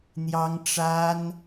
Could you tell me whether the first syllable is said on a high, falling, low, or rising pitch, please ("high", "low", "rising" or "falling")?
high